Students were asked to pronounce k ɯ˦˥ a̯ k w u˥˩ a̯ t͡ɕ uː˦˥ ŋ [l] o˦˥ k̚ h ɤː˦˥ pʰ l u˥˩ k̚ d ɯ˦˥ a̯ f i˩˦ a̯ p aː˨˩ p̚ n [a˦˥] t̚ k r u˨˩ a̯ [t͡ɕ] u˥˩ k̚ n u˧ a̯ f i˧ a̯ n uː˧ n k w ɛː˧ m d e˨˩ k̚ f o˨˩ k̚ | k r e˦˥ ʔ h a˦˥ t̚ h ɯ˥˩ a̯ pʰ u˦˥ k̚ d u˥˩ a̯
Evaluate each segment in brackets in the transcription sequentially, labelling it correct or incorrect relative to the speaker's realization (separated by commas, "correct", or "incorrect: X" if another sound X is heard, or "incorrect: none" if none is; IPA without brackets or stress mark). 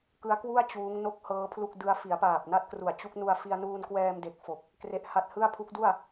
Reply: incorrect: n, incorrect: a˥˩, correct